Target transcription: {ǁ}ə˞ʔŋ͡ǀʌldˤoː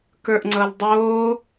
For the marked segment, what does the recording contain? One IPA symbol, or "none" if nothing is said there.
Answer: k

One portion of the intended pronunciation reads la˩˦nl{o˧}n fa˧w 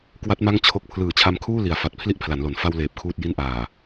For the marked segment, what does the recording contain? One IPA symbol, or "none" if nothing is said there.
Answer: o˩˦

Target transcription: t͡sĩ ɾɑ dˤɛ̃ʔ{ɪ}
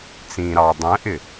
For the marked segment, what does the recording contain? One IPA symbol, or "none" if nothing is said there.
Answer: ɪ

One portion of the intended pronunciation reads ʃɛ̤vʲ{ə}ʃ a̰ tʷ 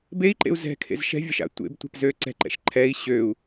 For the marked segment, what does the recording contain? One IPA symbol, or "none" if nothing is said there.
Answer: ə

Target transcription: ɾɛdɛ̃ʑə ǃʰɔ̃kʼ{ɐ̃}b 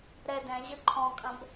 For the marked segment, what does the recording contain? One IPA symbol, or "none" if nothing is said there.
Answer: ɐ̃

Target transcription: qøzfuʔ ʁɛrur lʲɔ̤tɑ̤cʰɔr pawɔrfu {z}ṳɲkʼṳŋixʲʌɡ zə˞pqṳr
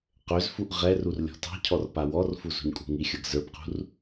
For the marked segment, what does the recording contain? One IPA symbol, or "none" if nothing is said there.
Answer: z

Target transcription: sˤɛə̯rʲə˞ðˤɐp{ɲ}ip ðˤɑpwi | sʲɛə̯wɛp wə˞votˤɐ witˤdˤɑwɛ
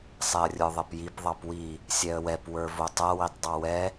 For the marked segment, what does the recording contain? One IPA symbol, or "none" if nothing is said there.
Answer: j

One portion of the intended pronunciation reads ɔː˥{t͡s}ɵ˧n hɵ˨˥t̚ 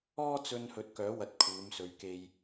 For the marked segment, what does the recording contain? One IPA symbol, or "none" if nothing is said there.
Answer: t͡s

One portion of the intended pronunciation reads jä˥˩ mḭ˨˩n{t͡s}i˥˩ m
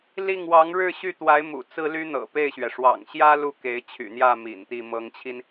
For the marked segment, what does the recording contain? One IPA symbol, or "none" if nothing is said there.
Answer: t̪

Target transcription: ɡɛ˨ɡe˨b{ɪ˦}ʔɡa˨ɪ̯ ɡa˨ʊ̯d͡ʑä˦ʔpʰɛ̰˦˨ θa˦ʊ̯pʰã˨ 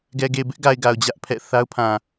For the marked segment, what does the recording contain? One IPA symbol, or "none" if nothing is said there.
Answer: ɪ˦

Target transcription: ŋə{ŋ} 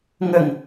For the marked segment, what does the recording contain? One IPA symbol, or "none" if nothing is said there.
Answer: ŋ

